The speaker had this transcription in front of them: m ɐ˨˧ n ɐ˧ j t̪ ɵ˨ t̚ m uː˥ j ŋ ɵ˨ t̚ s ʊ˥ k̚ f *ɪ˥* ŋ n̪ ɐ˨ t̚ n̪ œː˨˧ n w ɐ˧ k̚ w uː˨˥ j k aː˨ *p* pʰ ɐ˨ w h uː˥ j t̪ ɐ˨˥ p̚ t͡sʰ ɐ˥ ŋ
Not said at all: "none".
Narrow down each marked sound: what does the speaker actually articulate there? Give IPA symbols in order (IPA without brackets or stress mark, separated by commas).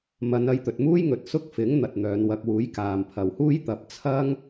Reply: ɪ˨˥, m